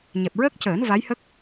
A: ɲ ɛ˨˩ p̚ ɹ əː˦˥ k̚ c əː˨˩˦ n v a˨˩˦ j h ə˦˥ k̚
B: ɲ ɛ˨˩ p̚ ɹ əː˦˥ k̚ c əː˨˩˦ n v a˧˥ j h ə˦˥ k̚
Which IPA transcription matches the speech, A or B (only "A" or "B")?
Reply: B